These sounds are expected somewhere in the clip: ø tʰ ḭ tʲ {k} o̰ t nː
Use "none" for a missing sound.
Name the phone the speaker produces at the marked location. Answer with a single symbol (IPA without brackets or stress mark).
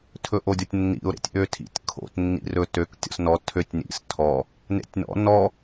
kʰ